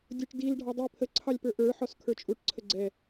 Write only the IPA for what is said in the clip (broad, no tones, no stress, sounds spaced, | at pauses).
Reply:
dʲ ʊ ʈ d i l ɖʱ ɑ dˤ i pʰ ə ǀʰ ɑ lʲ p ə˞ ʔ ə˞ ħ ɔ s kʰ ə˞ t͡ʃʼ u ʈ ǀʰ ə ɡ͡ǀ ɛ